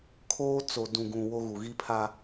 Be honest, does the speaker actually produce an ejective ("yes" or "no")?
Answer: no